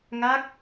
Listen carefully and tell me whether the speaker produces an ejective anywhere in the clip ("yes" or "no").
no